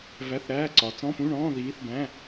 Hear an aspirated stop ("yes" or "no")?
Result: no